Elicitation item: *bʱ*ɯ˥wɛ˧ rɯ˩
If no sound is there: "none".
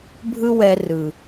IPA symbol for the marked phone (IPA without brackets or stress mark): bʱ